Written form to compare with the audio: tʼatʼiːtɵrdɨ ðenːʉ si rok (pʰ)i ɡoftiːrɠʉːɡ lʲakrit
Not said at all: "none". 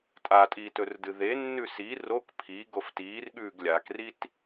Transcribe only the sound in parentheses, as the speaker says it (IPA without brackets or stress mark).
pʰ